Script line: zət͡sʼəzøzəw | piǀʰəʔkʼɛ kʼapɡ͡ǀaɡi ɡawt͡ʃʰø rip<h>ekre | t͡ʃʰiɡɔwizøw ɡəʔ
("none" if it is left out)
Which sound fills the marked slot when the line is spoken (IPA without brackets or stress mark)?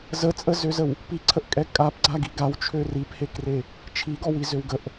h